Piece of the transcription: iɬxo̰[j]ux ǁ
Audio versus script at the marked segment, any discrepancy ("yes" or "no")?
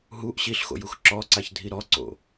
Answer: no